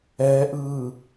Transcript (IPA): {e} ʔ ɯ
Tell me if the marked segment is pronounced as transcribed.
no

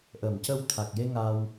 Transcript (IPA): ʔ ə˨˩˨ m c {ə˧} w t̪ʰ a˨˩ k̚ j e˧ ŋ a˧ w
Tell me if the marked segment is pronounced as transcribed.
yes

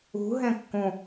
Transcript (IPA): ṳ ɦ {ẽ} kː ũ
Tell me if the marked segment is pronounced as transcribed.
yes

